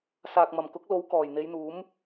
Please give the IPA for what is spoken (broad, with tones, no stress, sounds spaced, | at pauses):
s aː˨ k̚ m ɐ˨˩ m k ʊ˨˥ k̚ l o˨˥ w k ɔː˨˩ j n̪ e˨˧ j n̪ uː˨˥ m